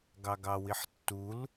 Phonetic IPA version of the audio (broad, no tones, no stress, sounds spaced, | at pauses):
ɡ ɑ ɡ ɑ w i ħ tː u l